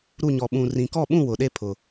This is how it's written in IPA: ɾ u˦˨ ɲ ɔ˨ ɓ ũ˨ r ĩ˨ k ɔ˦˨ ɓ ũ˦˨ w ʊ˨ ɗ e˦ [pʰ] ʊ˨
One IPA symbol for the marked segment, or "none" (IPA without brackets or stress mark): pʰ